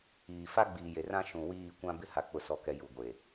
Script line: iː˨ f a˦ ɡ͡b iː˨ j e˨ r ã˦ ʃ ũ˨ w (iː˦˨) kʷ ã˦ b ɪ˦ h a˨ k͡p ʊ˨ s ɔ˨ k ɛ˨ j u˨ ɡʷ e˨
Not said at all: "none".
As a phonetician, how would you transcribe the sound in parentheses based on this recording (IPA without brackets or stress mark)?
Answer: iː˦˨